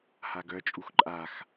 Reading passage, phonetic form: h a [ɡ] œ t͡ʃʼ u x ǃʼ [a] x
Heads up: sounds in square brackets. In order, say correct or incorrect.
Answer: correct, correct

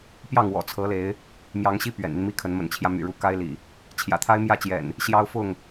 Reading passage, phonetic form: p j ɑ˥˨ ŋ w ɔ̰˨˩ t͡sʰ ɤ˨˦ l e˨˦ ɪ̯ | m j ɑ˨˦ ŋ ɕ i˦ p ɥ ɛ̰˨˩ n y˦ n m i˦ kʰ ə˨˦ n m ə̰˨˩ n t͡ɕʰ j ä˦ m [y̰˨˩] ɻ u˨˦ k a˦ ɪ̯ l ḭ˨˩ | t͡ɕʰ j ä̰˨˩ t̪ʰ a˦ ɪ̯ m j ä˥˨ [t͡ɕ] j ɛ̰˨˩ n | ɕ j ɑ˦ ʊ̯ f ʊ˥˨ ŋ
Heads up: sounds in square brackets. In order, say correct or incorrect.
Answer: correct, correct

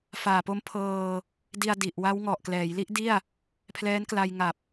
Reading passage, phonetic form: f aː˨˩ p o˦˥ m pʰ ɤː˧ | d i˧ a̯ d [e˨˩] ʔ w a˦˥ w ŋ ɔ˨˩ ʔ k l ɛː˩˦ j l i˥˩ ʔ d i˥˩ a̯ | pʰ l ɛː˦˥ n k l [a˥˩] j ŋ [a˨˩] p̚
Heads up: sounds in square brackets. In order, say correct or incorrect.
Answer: incorrect, incorrect, correct

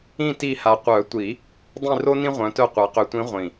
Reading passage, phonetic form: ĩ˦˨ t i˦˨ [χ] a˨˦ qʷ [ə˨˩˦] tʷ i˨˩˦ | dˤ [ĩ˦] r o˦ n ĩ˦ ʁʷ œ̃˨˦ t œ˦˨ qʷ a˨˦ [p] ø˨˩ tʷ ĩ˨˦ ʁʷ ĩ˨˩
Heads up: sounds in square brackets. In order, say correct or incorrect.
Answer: incorrect, incorrect, incorrect, incorrect

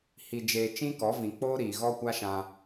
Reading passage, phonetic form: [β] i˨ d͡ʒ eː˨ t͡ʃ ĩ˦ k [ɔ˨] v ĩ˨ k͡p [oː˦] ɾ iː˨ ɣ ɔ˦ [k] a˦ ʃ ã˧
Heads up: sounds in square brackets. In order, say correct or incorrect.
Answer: incorrect, incorrect, correct, incorrect

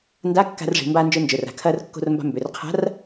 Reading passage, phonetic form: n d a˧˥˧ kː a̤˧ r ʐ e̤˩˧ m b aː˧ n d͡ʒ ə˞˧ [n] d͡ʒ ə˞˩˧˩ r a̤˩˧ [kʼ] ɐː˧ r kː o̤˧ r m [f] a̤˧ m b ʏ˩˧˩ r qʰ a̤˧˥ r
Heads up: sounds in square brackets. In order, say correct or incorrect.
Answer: correct, incorrect, incorrect

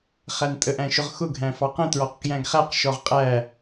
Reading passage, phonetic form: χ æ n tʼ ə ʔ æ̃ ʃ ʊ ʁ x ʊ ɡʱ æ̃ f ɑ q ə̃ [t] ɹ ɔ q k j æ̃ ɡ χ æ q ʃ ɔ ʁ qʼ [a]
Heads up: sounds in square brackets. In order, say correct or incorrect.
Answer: correct, incorrect

